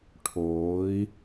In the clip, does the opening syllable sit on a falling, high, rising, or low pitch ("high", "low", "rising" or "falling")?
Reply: rising